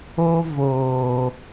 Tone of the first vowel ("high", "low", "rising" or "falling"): high